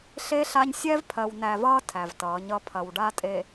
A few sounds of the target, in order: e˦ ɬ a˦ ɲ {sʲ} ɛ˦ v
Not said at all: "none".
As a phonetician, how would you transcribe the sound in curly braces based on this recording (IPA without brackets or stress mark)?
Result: sʲ